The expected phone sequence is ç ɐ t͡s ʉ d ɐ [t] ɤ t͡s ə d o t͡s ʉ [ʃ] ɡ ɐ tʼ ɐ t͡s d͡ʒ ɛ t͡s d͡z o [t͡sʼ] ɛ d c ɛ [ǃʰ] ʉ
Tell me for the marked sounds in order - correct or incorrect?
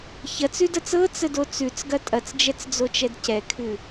incorrect, incorrect, incorrect, incorrect

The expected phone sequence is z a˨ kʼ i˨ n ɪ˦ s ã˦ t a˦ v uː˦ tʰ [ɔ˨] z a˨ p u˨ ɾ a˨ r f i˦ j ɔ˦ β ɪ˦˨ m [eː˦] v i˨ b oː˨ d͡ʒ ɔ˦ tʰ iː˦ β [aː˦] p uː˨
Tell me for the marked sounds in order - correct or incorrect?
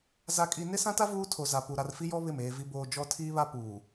incorrect, incorrect, incorrect

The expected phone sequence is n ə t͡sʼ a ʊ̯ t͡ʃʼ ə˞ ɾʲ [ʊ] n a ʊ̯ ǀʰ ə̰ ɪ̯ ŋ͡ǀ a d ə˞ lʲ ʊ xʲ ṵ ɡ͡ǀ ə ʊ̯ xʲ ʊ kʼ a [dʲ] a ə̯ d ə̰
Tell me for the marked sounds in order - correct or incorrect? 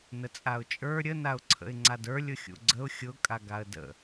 incorrect, incorrect

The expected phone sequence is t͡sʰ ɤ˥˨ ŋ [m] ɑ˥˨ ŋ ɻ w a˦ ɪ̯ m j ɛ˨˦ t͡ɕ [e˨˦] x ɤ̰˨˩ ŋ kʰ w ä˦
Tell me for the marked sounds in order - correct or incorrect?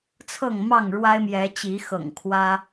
correct, incorrect

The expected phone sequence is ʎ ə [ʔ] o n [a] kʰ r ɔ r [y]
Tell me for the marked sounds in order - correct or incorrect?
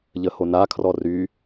incorrect, correct, correct

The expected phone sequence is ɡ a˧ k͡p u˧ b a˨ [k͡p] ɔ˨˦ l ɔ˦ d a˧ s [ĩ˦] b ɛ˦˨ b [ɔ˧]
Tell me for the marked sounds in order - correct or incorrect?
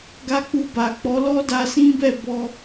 correct, correct, correct

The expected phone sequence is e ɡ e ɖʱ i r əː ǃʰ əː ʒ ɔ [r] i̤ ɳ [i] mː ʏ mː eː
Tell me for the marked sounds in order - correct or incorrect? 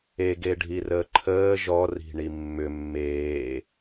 correct, correct

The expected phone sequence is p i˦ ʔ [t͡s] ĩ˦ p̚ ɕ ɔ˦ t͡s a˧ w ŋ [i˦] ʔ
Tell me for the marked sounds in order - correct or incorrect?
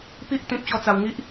incorrect, correct

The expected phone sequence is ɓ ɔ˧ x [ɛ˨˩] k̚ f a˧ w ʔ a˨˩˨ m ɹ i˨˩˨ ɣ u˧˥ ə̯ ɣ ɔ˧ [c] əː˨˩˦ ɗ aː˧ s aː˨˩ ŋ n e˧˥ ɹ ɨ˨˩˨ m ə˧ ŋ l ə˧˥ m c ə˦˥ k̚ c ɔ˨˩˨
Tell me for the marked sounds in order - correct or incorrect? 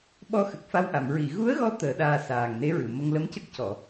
incorrect, incorrect

